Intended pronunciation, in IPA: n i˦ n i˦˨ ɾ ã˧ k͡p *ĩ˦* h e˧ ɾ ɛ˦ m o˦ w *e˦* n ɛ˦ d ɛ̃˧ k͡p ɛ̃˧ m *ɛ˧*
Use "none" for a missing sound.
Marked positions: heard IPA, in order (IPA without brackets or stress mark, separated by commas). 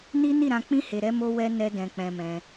ĩ˦, ɛ˦, ɛ̃˧